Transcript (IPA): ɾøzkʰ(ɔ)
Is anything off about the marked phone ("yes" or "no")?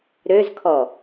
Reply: no